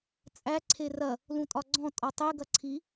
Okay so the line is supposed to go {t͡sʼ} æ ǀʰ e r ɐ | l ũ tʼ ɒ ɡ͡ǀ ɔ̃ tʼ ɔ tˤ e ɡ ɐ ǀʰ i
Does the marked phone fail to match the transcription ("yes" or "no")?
no